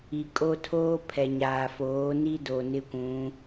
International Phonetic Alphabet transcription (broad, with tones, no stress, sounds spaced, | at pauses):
i˨ kʼ o˦ tʰ oː˦ pʰ ɛ˨ ɲ aː˨ f oː˨˦ n i˦ d o˨ n ɪ˦ kʷ ũ˨˦